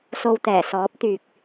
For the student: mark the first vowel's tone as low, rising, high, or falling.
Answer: low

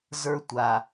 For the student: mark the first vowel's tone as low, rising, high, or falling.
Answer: high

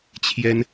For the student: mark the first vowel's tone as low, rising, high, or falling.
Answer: high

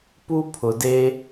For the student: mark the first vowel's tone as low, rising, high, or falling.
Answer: high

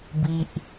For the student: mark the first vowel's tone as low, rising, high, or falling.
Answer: high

